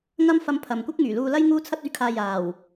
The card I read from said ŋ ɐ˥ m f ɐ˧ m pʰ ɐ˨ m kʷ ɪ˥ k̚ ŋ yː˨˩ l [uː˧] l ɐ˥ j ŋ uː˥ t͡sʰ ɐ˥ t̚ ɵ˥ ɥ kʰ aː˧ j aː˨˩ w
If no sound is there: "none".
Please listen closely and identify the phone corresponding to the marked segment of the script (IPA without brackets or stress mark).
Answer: uː˧